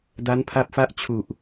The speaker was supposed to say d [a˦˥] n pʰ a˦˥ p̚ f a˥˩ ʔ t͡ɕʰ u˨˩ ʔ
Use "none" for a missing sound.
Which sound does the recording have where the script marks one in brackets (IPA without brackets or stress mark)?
a˦˥